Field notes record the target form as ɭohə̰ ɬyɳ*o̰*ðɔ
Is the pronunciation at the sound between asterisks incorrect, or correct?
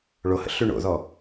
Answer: correct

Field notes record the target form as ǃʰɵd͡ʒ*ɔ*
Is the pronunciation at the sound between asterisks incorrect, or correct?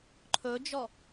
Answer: correct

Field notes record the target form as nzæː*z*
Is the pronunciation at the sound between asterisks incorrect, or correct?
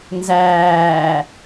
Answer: incorrect: none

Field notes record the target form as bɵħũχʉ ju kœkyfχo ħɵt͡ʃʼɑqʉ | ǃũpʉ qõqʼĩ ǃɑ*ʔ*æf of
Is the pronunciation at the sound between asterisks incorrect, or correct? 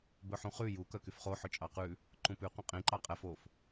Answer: incorrect: qʼ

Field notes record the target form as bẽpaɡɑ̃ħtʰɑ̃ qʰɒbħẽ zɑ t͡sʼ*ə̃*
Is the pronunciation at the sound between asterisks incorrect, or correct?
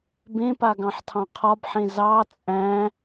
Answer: incorrect: æ̃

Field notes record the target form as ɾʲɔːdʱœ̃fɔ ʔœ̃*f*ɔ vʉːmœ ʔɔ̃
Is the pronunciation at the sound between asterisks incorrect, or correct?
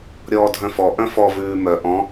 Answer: correct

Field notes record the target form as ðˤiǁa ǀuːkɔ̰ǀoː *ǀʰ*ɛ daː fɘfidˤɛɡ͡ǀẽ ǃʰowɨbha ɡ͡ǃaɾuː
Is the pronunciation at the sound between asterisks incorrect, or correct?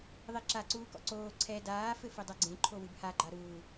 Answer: correct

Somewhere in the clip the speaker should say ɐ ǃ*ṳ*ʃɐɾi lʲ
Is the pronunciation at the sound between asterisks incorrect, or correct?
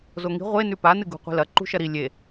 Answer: correct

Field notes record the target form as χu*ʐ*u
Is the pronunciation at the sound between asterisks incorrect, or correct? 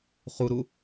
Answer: incorrect: ɾ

